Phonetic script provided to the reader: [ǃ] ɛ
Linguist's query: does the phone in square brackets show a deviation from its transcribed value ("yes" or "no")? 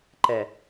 no